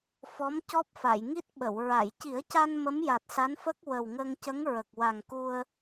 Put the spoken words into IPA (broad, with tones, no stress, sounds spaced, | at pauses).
f ɔ˧˥ m c ɔ˦˥ p̚ f a˨˩˨ j ŋ i˦˥ t̚ ɓ ə˨˩˨ w ɹ a˨˩˨ j c i˨˩˦ ə̯ c a˧ n m ə˧˥ m j a˨˩ t̚ s a˧˥ n f ə˦˥ k̚ w ə˨˩ w ŋ ə˧ ŋ c ə˧˥ ŋ ɹ ə˨˩ k̚ w a˨˩ ŋ k u˧ ə̯